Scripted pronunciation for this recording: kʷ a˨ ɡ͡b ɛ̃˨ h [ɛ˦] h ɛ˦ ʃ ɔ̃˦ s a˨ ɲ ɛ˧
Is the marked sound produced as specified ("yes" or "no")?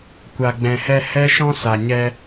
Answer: no